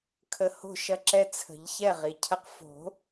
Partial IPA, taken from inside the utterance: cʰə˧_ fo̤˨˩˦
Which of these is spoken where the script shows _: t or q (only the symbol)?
q